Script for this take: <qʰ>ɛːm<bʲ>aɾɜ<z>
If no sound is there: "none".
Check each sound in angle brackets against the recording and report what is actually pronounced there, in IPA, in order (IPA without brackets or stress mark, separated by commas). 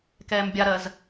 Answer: k, bʲ, z